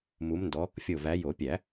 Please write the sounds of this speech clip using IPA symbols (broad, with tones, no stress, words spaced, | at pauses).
mu˨˦mndɔ˨˦ | fʲo˧˩væ˨˦ jo˨˩˦pʲæ˨˩˦